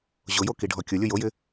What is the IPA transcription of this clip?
ʑʊjo kiɖʱɔkʲʊlʲʊ jojɪ

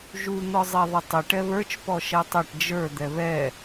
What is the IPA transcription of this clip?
ʒu n̪ɔzˤɛðˤɪtˤɪ ʈɛβə˞t͡ʃ pɔʃɛtˤɛʈ d͡ʒə˞ d̪ɛβɛ

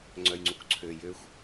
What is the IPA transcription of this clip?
ŋ͡ǀœjŋ͡ǀukǀʰø jøxʷ

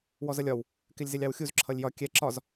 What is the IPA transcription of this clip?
wɔzʌlʲɒw | kɪlʲzɪlʲɑwxʲuz ǁʰʌlʲjɒ kʲɛ ǁɒz

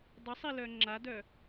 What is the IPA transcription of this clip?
dˤəsˤilœ ŋ͡ǁadœ

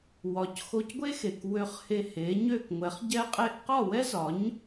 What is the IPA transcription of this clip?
wɒ˩˥cxo˧cɡʷe˥xe˩k wø˧χhe˧he˩˥ɲø˥˩k ŋʷɛ˩˥χɟɛ˥qʼe˥ʔ qɒ˥˩wɛ˥zɒ˩˥ɲ

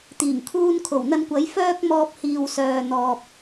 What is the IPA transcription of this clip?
t̪iː˨˩ŋkʰuː˧nkʰo˨˩w n̪ɐ˧nkʷɐ˨˥j fœː˥k̚mɔː˧p̚hiː˨w sœː˨n̪ɔː˨p̚

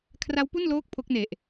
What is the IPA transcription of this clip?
kʰra˦˥wpu˥˩nloː˦˥k̚ pʰo˦˥k̚ne˨˩ʔ

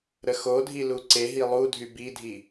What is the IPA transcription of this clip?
ɾəxodʱi luǀeɦi lˠudʱy bidʱi

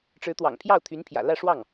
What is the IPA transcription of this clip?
ʈ͡ʂɻ̩˧˥t̪wɑ̰˨˩ŋ pʰjɑ˥˩ʊ̯t̪ʰy˧˥npʰjä̰˨˩lä˥˧ ʂwɑ˥˩ŋ

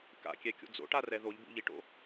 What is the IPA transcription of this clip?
ka̰kʲɛkʲo̰ d͡zo̰ʈarɛ ðoʎbṵʎiʈo̰

